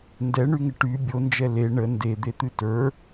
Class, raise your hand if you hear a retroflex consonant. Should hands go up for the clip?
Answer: yes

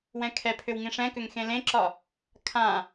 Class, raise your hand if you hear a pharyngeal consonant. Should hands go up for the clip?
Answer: no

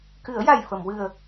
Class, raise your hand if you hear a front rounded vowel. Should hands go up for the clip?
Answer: no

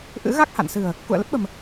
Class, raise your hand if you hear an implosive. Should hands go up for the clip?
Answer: yes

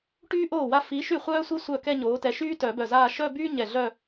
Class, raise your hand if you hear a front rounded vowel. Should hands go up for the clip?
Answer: yes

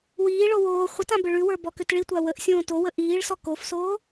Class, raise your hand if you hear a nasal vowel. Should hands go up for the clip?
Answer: yes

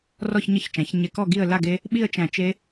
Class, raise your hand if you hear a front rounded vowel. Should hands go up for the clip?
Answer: no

